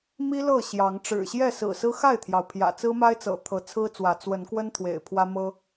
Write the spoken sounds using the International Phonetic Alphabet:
m i˦ l ɤ˥˨ ɕ j ɑ˨˦ ŋ ʈ͡ʂ ɻ̩˨˩ ɕ j ɛ˥˨ s ɹ̩˨˩ s ɹ̩˦ x a˥˨ ɪ̯ t̪ʰ j ɑ˩ ʊ̯ pʰ j ä̰˨˩ t͡s ɹ̩˦ m a˦ ɪ̯ t͡s ɤ̰˨˩ t̪ʰ ɤ˨˦ t͡sʰ ɹ̩˦ t͡s w ä˨˦ t͡s w ə˨˦ n k w ə˦ n t̪ʰ w ḛ˨˩ ɪ̯ pʰ w ä˦ m ɤ˦

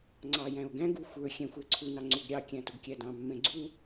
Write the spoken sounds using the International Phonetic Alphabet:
ŋ͡ǀ ɑ j æ̃ o̯ ɡ æ̃ ɡ u xʷ ə˞ xʲ ɛ̃ xʷ æ ǀʰ u n ɑ ŋ͡ǀ u ɡ ɾʲ ɑ kʲ æ̃ t ʊ ɡ kʲ æ d ɑ̃ mː ɛ̃ ɡ͡ǀ u

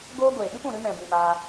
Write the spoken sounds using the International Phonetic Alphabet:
ɡ oː˧ ɡʷ eː˨ ɓ ɨ˦ p ũ˨ ɾ ɨ˧ m ɛ̃˨ b ĩ˨ m aː˧

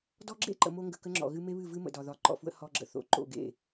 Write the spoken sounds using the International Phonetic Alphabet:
d ɔ˦ ɡ͡ǁ ḛ˦ ǃ ə̰˨ m o˦ ŋ ɡ ə˨ k ə˦ ŋ͡ǁ ɔ̰˨ ɣ ɨ˦ m e˦ β ɨ˦˨ v ɨ˦ m ə̰˨ d ɒ˨ ð ɒ˨˦ ǃ ɔ̰˨ f w ə̰˦ h ɔ˦ ɡ͡ǁ ə̰˨ θ o̰˨ ǃ o̰˦˨ ɡ ḛ˦˨

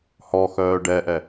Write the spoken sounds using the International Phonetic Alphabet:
h ɔ x œː ɖ ɛ ʔ ɛ

